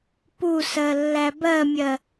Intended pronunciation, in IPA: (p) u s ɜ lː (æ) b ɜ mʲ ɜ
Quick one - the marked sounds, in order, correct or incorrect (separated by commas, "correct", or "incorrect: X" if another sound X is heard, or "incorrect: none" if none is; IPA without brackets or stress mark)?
correct, correct